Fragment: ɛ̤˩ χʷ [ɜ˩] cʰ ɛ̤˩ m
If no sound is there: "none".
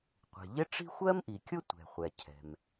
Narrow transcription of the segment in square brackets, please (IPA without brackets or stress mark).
ɛ˩